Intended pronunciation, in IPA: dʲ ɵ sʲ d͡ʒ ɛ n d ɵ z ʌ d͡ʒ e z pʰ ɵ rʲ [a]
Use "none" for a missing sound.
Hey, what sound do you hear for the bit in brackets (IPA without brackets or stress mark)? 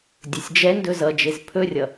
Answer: ʌ